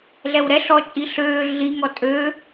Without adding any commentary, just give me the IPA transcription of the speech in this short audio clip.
ɮ ɛ w ɾ ɛ ɬ ɔ t͡ʃʼ i ɬ øː ɮ i ŋ ɔ tʼ ø

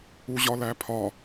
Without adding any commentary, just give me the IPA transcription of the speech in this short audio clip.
u ʑ ɒ l æ pʰ ɒ

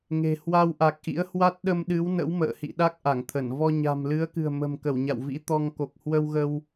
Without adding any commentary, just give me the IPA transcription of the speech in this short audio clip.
ŋ e̤˨˩ h w a˧ w ʔ a˨˩ k̚ ʔ ḭ˧˥ ə̯ h w a˦˥ t̚ ɗ ə˧ m ɗ ɨ˨˦ w n ə̰˧˥ w m ə̰ː˧˨ h ḭ˧˨ ɗ a˦˥ k̚ ʔ a˧˩ ŋ t̪ʰ ə˧˩ n v ɔ˧ ɲ a̤˨˩ m l ɨ˨˦ ə̯ k ɨ̤˨˩ ə̯ m ə̤˨˩ m k ə˧˩ w ɲ a̰˧˨ w v ḭ˧˥ t̪ ɔ˧ ŋ k o˨˩ k̚ h w ə˧ w ɣ ə˧ w

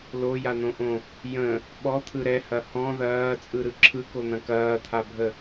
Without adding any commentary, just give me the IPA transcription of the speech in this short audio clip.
l o j a n̪ õ ʔ õ | j ə̃ | ɓ ɔ t̪ʰ ɯ ɾ ɛ h ɐ h ɔ̃ ð ɐː t͡sʼ ɯ ɾ ɯ ǁʰ ɯ k o n̪ ɐ̃ k ɐː t̪ʰ a bʱ ə

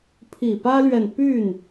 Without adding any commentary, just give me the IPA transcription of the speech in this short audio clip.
pʰ i˨˩ p ä˥ l ɥ ɛ˨ n p y˥˩ n

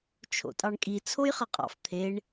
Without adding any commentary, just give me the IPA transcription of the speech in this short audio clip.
t͡ʃʰ o̰ tʼ ɑ ɳ kʼ i t͡sʰ o j χ ɐ qʼ ɑ̰ f t̪ʰ e ɳ

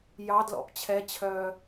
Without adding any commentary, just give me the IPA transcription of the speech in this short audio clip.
j ɑ d l ɔ̰ p t͡ɕʰ ɛ t͡ɕʰ œː

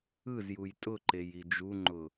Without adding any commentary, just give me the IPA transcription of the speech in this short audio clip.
ɯ z j u j tʼ ʊ ǃ e j i d͡ʒ u ŋ͡ǃ ʊ

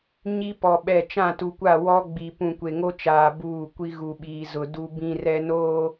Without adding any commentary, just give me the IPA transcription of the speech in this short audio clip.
ɲ i˦ p ɔ˨ ɓ ɛ˦˨ t͡ʃ ã˦˨ t u˨ kʷ a˦˨ w ɔ˦ ɡ͡b i˨ p ũ˨ kʷ e˨ ŋ o˦ t͡ʃ aː˨ b uː˦˨ kʷ i˦ ɣ u˨ ɓ iː˨ z ʊ˨ d u˦ b ĩ˦ r ɛ˦ n oː˦

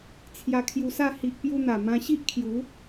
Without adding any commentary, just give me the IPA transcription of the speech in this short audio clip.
t͡sʰ j a˧ kʰ j u˧ s a˥˧ h i˨ ʔ p j u˧ n̪ a˨˩ m ã˧ ɕ i˦ ʔ kʰ j u˨˦

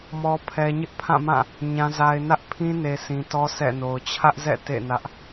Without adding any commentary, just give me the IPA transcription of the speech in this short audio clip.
m ɔ˨ pʰ ɛ˨ ɲ ɪ˦ ʔ pʰ ã˦˨ m ã˦˨ | ɲ ã˨ z a˨ ɪ̯ n ä˦ ʔ pʰ ĩ˦ n e˨ s ĩ˨ t ɔ˦ sʰ ɛ̰˦˨ n o˨ ʊ̯ t͡ɕʰ ä˦ ʔ z ɛ̰˦˨ t ḛ˦˨ n ä˦ ʔ

